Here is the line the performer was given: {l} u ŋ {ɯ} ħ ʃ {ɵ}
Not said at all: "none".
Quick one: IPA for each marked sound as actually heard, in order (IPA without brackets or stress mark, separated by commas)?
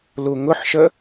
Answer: l, ʊ, ə